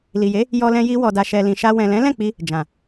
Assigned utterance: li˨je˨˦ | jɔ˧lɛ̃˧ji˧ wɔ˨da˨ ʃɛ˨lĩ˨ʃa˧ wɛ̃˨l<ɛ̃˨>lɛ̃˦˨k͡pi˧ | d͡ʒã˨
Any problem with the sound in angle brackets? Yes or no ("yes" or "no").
yes